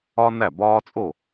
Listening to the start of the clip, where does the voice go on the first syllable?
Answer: high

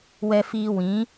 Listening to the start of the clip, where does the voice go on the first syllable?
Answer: high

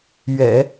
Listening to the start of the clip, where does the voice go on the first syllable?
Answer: low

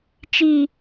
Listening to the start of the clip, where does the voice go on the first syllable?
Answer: high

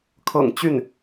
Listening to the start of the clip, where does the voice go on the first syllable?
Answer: low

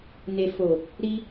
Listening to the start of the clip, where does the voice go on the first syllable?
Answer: low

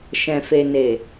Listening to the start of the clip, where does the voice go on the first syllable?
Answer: low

